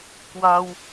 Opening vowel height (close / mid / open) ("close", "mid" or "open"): open